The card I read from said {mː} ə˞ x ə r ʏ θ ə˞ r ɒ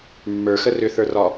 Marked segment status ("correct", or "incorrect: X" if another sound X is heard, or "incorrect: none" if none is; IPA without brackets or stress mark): correct